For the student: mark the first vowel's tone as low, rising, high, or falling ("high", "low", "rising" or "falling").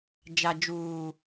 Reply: low